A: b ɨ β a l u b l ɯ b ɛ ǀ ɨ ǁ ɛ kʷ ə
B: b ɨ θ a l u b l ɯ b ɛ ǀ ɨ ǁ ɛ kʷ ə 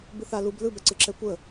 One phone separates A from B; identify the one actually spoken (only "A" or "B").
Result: B